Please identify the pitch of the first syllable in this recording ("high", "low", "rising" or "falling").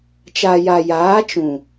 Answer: low